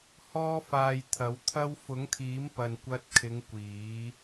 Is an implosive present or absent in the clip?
absent